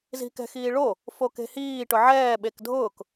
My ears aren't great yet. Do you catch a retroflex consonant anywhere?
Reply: yes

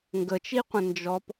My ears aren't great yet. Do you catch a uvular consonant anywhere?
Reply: yes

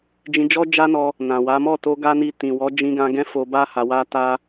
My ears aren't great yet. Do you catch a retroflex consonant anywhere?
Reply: no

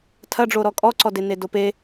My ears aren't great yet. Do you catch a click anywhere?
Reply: yes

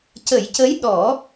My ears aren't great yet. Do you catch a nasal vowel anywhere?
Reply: no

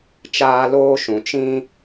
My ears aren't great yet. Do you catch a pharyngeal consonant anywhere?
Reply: no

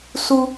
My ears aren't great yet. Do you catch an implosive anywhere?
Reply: no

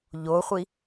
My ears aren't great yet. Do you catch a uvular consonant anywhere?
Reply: yes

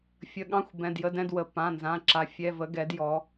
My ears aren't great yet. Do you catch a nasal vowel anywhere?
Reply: yes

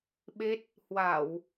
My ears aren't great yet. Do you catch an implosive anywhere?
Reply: yes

